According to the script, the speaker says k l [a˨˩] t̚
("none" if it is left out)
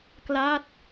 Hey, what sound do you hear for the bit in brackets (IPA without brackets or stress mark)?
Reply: a˦˥